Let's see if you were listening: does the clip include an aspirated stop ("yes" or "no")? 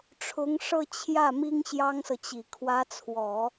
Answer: yes